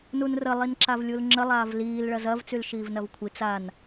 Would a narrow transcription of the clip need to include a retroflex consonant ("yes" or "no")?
yes